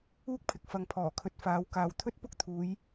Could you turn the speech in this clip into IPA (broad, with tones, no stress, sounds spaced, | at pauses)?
uː˥ k̚ pʰ ɪ˨ k̚ f ɐ˨ ŋ pʰ ɔː˨˩ kʰ ɵ˨ t̚ f aː˨˧ w k aː˨ w t̪ʰ ɵ˥ t̚ p ʊ˥ k̚ t̪ʰ uː˨˧ j